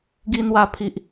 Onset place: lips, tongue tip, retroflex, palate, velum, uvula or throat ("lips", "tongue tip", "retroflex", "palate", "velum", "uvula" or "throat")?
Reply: velum